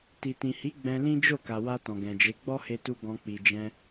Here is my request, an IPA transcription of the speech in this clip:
ti˨tĩ˨hi˨˦ ɡ͡bɛ̃˧lĩ˦ d͡ʒo˦˨ka˨ wa˧ tɔ̃˨ɡɛ̃˨d͡ʒe˨˦ ɡ͡bɔ˦he˧tu˧ ɡɔ̃˧ k͡pi˨d͡ʒɛ̃˧

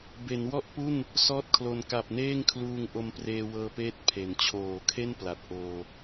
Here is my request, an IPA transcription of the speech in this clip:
be˩˦nwɔ˥˩ʔpu˥˩n | sɔː˥˩t̚kʰlo˧n ka˨˩p̚neː˥˩ŋkʰluː˧ŋ ʔo˧mpreː˧wɤː˧peː˦˥t̚ pʰe˩˦n t͡ɕʰoː˩˦kʰe˥˩n pla˨˩t̚ʔoː˧

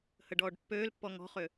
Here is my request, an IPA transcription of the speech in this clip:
həɖɔːɖpːøːlpːɔ ŋɔ̤χø

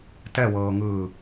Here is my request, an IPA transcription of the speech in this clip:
tɛwɤːŋɯː

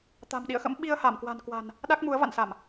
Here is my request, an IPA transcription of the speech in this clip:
t̪a̤˨˩mɗḭ˧˨ə̯xə̰˧˥m ɓi˧ə̯ha˧˩mkwa̤˨˩nkwa̤˨˩n | ɗa˦˥k̚mu˨˦ə̯va̰˧˨nsa˧˩˨m

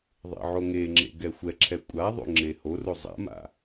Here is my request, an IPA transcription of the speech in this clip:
ðˤḛʕoŋeŋ͡ǁḛ ɡɛxʷɛǁʰɛ kʷʼa ðˤo̰ŋ͡ǁehoro zˤa̰ma̰

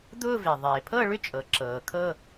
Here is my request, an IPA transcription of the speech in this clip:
d̪ʊː˥˧ve˩ ðˤeː˩pʰɤ˥˧ɭʏ˥˧ t͡ʃʼɤ˩ǁɤː˩kʰɤ˥˧

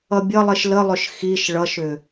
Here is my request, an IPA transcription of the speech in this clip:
ʌbʲʌlˠiʃ ləlˠʏʃ xiʃ ɭʌʃʏ

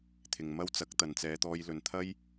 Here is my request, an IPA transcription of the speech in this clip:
t̪ʰɪ˨ŋmɐ˥w t͡sɐ˨˥k̚t̪ɐ˨nt͡sɛː˨˧t̪ɔː˧j lɵ˨nt̪ʰɐ˥j

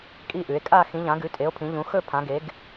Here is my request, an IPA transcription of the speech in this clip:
kʼi˦˨ʔʉ˩˧e̯ kʼa˦˨ xĩ˩˧ʎã˩˧ɡʉ˩˧tʼe˩˧o̯ pʰĩ˩˧ʎũ˩˧ xɵ˦˨pʰã˩˧ɡe˩˧ɡ

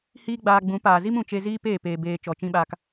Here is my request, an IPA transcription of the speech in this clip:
hiː˦ɡ͡baː˧ɡ͡bũ˨˦ paː˨zi˦mũ˨t͡ʃe˧ ziː˦peː˦˨ peː˨ beː˨ t͡ʃɔ˨t͡ʃĩ˧ɓaː˧k

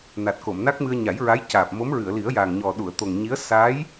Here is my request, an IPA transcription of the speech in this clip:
na˨˩t̚ko˨˩˨mna˦˥k̚mɨ˧ə̯ ɲa˨˩˦jɹa˧˥jcaː˨˩p̚ mo˧˥mɹɨ˨˩˨ə̯li˨˩˦ə̯jaː˨˩ŋ ɲɔ˨˩ ɗu˨˩˨ə̯t̪o˨˩ŋ ɲi˧˥ə̯ sa˧˥j

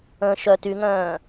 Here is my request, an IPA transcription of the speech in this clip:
ə̃ ʃœ tyŋœ̃ː

